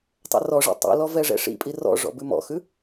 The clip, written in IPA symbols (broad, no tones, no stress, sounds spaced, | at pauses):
tˤ ɛ̰ r ɔ ʐ ḭ tˤ ḭ l ɔ v ɛ ʐ ɛ̰ ʂ ḭ pʼ i r ɔ̰ ʐ ɔ̰ b ʉ m ɔ̰ x ʉ